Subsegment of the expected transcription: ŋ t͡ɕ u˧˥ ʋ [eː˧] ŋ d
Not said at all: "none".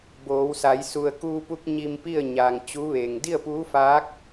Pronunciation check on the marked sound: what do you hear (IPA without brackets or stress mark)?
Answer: eː˩